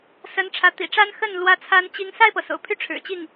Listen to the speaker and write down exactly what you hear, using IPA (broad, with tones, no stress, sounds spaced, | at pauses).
s ə˧˥ n ʈ͡ʂʰ ä˧˥ t̪ ḭ˨˩ ʈ͡ʂ a˥ n x ə˥˩ n l w ä˥ t͡sʰ a˥ n t͡ɕ i˥ ŋ s a˥˩ ɪ̯ p ɤ˩ s o̰˨˩ ʊ̯ pʰ y˥˩ ʈ͡ʂʰ ɻ̩˨˩ t͡ɕ i˥˩ ŋ